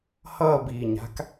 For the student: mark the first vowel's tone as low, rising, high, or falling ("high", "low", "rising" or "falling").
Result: falling